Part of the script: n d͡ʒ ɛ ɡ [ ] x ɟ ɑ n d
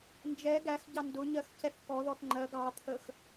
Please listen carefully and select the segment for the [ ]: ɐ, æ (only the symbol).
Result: æ